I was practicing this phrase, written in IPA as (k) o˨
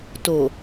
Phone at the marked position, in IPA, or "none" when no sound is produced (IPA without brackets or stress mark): t